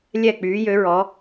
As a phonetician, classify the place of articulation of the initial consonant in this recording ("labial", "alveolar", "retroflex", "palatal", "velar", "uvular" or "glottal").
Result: alveolar